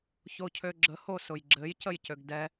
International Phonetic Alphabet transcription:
ç o cʰ ø ɡ͡ǁ ə h o s ʊ j ɡ͡ǁ ɘ j c ə j c ø ɡ d ɛ

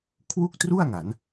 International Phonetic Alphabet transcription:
kʰ w u˥˩ k̚ t r u˥˩ a̯ ŋ a˩˦ n

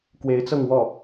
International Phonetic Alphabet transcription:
k w e˧˥ ɪ̯ t͡s ɤ˥˧ ŋ w ɔ˥˩

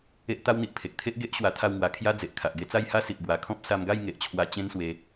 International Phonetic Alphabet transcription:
e˦ ʔ t̪ a˦ w n̪ i˨ ʔ pʰ e˨ k̚ t̪ʰ e˦ ʔ ɡ e˦ ʔ ɕ w a˧ t̪ʰ a˥˧ w ŋ w a˧ kʰ j a˦ d͡z e˨ ʔ kʰ a˨ ʔ ɡ e˧ t͡s a˥˧ j h a˦ s i˨ ʔ b w a˨˩ kʰ ɔ̃˦ p̚ s a˧ m ɡ a˥˧ j ŋ e˨ ʔ t͡ɕʰ w a˧ t͡ɕ ẽ˦ n s w e˧

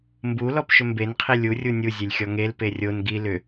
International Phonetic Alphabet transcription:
m b u l ɔ p ʃ ʏ m b e n qʰ i lʲ u rʲ u nʲ u zʲ e lʲ xʲ ɔ ŋ e l p e rʲ o n ɡ i l ʏ

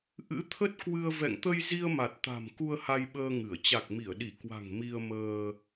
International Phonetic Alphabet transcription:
ʔ ɨ̰˧˥ t̪ʰ ə˦˥ t̚ k w ɨ˧ ə̯ v ɛ̰˧˨ ŋ t̪ ə˧ j z i˧ ə̯ m a˨˩ t̚ t̪ a̤˨˩ m k u˧ ə̯ h a˧ j ɓ əː˧ ŋ ɨ˧˩ ə̯ t͡ɕ a˨˩ k̚ m i˧˩ ə̯ ɗ i˧˩ k w a̤˨˩ ŋ m i˧ ə̯ m əː˧

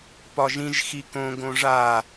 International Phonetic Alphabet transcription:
p ɒ ʒ ĩ ʒ x i k õ ɡ õ ʐ a

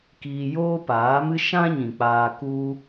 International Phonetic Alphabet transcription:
k iː˧ j oː˦ p aː˨˦ m ɨ˦ ʃ ã˦ ɲ ĩ˨ k͡p aː˧ k u˦

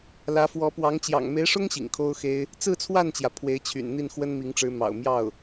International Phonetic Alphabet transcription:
l ä˧˥ f w ɔ˧˥ p w ɑ˧˥ ŋ t͡ɕ j ɑ̰˨˩ ŋ m e˧˥ ɪ̯ ʂ ʊ˥ ŋ ɕ ḭ˨˩ ŋ kʰ o˥ ʊ̯ x e˥ ɪ̯ | t͡s ɹ̩˥˧ t͡sʰ w a˥˩ n t͡ɕ j ä˩ pʰ w e˧˥ ɪ̯ t͡ɕʰ y̰˨˩ n n̪ i˥˩ n x w ə˥ n m i˧˥ ŋ ʈ͡ʂ ɻ̩˧˥ m ɑ̰˨˩ ʊ̯ m j ɑ˥˩ ʊ̯

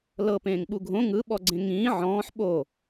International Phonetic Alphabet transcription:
l ɤ p ẽː ŋ ɓ u ɡʱ õ ŋ ɯ ɓ ɔ ɡ͡ǀ ẽ ŋ ĩː ʕ ɔ̃ː ħ ɓ o

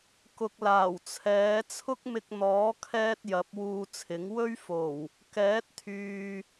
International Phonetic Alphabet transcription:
k ʊ˨ k̚ l aː˨˩ w t͡sʰ ɛː˨˥ t͡sʰ ʊ˥ k̚ m ɪ˧ k̚ n̪ ɔː˨˥ kʰ ɛː˥ t̚ j ɐ˨˥ p̚ w uː˧ t͡sʰ ɪ˨˥ ŋ w ɵ˥ ɥ f o˨˩ w | k ɛː˨˥ t̚ t̪ʰ yː˨

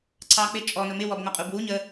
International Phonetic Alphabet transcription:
ǀʰ ɑ k͡p ɪ t͡ʃʼ ɔ n ʊ m ɪ w ɔ b ŋ ɒ qʼ u b w u ɲ ə

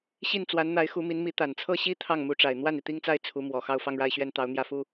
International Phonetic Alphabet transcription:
ɕ i˥˩ n t͡s w a˧˥ n n̪ a˧˥ ɪ̯ x u˧˥ m i˧˥ n m i˧˥ t̪ a˨˩ n t͡sʰ ɤ˥ ɕ i˥ t̪ʰ ɑ˥˩ ŋ m u˧˥ ʈ͡ʂ a˨˩ ɪ̯ n̪ w a˥˩ n i˩ t̪ i˥˧ ŋ t͡s a˥˩ ɪ̯ t͡sʰ u˧˥ m w ɔ˨˩ x ɑ˥˧ ʊ̯ f ɑ˥˧ ŋ ɻ a˥˧ ɪ̯ ɕ ɥ ɛ˥˩ n t̪ ɑ˧˥ ʊ̯ n̪ j ä˥˩ f u˥

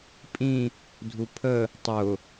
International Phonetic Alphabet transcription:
pʼ ĩ | dʱ u pʰ ə | tˤ ʊ

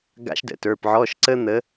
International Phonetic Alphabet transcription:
ɡ a̰˧˥ ʃ d ə̰˩˧ t ə˞˩˧˩ p ʕ ɔ˧˥˧ ʃ ǀ ə˥ n̪ ə˧˥

